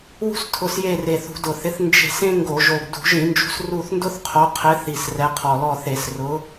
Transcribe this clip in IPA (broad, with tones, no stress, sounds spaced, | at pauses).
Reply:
w ṳ˥ s tʰ ʊ˨˦ s j e˦˨ r e˨˩ θ ṳ˧˩˧ d ʊ˨˩ θ ɪ˨˦ θ n d͡ʒ e̤˦˨ s ẽ˥ ŋ ɡ o˧˩˧ ʒ o˨˩ ɡ d ṳ˧˩˧ ʒ ĩ˧˩˧ n d͡ʒ ṳ˨˦ s r u˦˨ θ n d ʊ˥ θ qʰ o˨˦ qʰ ɪ˨˦ θ i˨˩ s r ɛ˨˦ qʰ ɔ˨˩ l ɔ˦˨ θ e˧˩˧ s r ʊ˨˦